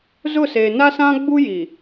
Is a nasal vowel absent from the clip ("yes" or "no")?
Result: no